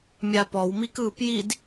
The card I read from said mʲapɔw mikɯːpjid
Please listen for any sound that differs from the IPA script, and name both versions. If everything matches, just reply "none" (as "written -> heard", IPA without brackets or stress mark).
none